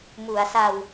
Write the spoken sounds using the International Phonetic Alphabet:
mu˩˦a̯ sa˧w

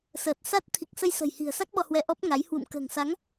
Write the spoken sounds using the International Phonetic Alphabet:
səː˨˩t̚sa˦˥t̚ t̪ʰi˨˩k̚ sə˧jsə̤˨˩jhi̤˨˩ə̯sa˦˥k̚ ɓɔ˧hwɛ˧ʔɔ˦˥p̚ŋa˨˦j hwṵ˧˨m kə̤ː˨˩ŋsa˨˦ŋ

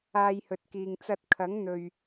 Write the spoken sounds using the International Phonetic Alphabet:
aː˧jhɵ˨t̚kiː˨ŋ t͡sɐ˧t̚kʰɐ˨˥ŋn̪ɵ˨ɥ

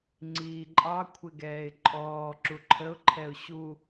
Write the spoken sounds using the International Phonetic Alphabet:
ŋ͡ǀiːǃʼɑ kʷʰɪɡɛːɪ̯ǃʼɔː ǁuǃʰəʊ̯ ǃʰɛʊ̯ɕu

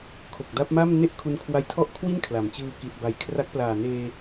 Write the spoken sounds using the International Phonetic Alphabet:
kʰo˨˩k̚da˦˥p̚ma˥˩m ne˥˩ʔkʰu˧nkʰwa˦˥j tʰɔ˥˩ʔkʰwi˥˩n kʰla˩˦mt͡ɕɯː˧ ki˨˩t̚ba˩˦jkʰra˦˥k̚ plaː˨˩neː˧

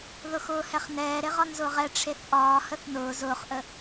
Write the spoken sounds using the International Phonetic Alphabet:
ðʊxʊːhɛχnɛː ɾeʁɒnzʊːʁɛ ʈ͡ʂʰeθʔɒː həθnʊː zʊːχʔə

